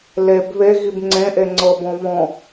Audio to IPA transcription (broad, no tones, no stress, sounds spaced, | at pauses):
l e b β e ɣ i b ŋ͡ǀ ẽ ʔ e ŋ͡ǀ ɤ b ɔ̃ β ɔ̃